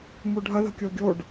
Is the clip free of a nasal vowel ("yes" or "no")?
yes